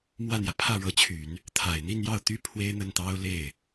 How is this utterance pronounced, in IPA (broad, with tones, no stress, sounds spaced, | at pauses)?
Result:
m w ä˥˩ n̪ j ä˩ pʰ ä˥˩ ɻ ɤ˧˥ t͡ɕʰ y˨˩˦ n | t̪ʰ a˨˩ ɪ̯ n̪ i˥˧ n j ɑ˥˩ ʊ̯ t̪ y˥ pʰ w e˥ ɪ̯ n̪ ə˥˩ n t̪ ɑ˥ ʊ̯ l e˥˩ ɪ̯